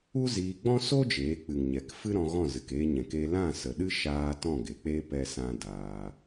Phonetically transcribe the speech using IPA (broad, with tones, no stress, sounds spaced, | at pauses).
u˦ z iː˧ ɡ͡b ɔ̃˦ s o˦ d͡ʒ eː˨˦ k͡p ɨ˨ ŋ ɲ ɛ˨ k f ɨ˦ ɾ ɔ̃˧ ɣ ɔ̃˦˨ z ɨ˨ k eː˧ ɲ ɛ̃˨ k e˧ l ã˦˨ s ə˨ ɗ ɨ˦ ʃ aː˧ t ɔ̃˦˨ ɡ e˨ k͡p e˦ p ɛ˦ s ã˦ d aː˧